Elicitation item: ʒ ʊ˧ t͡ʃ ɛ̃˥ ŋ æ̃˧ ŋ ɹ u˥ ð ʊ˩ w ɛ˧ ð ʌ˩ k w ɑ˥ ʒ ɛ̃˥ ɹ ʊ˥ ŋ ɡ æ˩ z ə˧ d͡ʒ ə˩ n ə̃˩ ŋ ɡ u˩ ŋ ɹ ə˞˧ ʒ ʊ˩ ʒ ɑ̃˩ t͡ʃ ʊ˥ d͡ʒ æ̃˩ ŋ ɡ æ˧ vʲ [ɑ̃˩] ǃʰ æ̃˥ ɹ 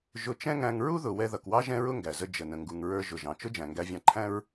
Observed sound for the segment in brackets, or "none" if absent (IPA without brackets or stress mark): ɑ̃˧